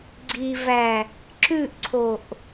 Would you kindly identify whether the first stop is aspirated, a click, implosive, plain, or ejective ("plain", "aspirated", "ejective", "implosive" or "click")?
click